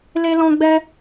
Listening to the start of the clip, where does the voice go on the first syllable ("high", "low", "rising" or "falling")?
high